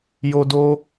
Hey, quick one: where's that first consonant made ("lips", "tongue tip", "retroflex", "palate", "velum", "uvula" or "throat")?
palate